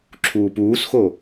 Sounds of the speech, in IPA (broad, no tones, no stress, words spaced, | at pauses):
ǁʰuːpuːsxo